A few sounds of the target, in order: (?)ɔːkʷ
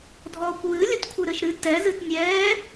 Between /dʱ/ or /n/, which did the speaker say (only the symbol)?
dʱ